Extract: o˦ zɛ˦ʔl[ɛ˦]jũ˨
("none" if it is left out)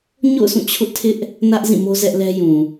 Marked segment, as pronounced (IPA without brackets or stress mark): ɛ˦